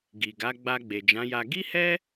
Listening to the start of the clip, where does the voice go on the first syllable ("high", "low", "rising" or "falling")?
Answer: low